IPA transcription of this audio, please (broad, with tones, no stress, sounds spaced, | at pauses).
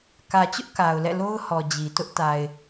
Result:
k ä˨ t͡ɕ ʊ˦ ʔ k a˨ ʊ̯ l ɛ̰˦˨ l o˦ ʊ̯ h ɔ˨ d͡ʑ i˨ t ʊ˦ ʔ t a˨ ɪ̯